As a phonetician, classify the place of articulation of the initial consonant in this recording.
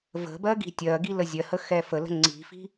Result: labial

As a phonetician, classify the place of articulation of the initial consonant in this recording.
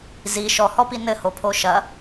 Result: alveolar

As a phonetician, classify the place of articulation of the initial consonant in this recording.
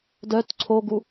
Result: alveolar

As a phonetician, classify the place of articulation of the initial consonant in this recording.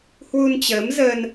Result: glottal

